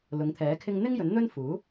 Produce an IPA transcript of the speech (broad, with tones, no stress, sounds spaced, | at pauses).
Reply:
l ʊ˨˥ ŋ t̪ʰ ɛː˨˥ kʰ ɪ˥ ŋ n̪ ɪ˥ ŋ j ɵ˨˥ n n̪ ɵ˥ n f uː˨˥